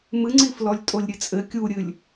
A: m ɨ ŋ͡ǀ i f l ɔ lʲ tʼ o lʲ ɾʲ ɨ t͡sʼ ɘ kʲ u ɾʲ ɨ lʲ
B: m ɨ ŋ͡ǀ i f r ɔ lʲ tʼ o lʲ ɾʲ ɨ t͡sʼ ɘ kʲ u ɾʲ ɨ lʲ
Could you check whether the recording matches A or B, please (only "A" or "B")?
A